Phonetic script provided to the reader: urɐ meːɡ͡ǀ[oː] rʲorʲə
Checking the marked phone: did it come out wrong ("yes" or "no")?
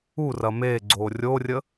no